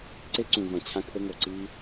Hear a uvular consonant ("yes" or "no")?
no